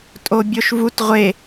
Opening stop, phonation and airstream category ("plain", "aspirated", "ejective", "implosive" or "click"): ejective